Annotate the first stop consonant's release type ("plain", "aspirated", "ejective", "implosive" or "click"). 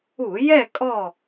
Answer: ejective